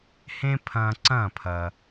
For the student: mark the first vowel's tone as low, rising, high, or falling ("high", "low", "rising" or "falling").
high